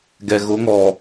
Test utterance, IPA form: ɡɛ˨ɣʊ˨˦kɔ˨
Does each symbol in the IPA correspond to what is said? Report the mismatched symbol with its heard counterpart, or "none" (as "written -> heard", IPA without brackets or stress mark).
k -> ŋ